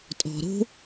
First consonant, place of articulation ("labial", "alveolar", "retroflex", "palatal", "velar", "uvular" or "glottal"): alveolar